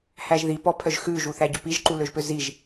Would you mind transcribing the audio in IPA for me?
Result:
h æ ʒ ð i p ɔ pʰ œ ʒ x ʉ ʒ u θ æ ɟ œ p i ʒ ǃ u l ø ʒ p ø z i ʒ

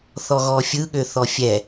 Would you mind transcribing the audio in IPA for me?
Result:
θ ɔ ɣ ɔ fʲ ɯ ɠ ø θ ɔ fʲ ɛ

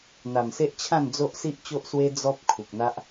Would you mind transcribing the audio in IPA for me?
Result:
n̪ a˨˩ m s e˦ ʔ t͡ɕʰ ã˥˧ n d͡z o˦ ʔ s i˦ ʔ t͡ɕ o˦ ʔ s w e˦ d͡z ɔ˦ p̚ kʰ u˨ k̚ n̪ a˦ ʔ

